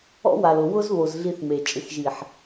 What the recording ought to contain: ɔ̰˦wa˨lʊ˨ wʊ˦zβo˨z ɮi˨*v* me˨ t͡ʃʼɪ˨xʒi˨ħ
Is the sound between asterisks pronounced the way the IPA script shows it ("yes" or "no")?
no